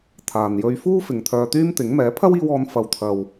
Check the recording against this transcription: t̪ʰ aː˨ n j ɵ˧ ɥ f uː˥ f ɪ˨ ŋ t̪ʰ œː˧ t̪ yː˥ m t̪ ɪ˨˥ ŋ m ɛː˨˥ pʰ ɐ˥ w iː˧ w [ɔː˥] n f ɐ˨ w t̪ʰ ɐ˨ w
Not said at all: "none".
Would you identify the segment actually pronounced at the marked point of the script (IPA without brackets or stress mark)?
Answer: ɔː˨˧